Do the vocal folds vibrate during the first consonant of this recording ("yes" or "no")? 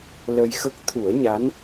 yes